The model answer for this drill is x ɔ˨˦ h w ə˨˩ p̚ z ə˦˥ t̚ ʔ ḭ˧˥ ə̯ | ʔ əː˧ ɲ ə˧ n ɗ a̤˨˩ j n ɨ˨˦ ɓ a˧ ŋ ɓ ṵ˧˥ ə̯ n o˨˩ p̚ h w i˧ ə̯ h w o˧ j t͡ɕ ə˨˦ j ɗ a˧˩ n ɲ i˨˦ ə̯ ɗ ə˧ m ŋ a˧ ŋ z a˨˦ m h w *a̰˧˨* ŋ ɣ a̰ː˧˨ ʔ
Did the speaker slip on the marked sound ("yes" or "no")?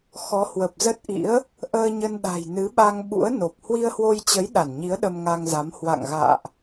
no